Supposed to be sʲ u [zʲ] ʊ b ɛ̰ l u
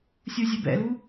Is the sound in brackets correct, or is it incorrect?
correct